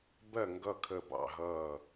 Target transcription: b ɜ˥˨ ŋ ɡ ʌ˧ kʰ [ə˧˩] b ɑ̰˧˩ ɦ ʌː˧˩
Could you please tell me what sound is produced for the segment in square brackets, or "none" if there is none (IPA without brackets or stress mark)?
ə˧˩